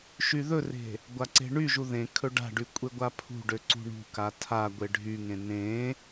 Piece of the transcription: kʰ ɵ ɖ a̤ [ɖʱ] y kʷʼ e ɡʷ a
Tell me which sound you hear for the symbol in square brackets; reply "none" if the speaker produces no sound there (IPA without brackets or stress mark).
ɖ